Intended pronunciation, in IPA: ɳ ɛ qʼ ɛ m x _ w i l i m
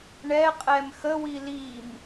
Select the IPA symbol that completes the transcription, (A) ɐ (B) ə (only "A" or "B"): B